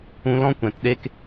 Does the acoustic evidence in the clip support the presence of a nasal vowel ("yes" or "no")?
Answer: yes